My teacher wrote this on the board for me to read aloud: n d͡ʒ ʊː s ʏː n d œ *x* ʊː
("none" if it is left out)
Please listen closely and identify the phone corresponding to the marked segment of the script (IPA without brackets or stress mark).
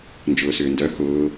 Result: x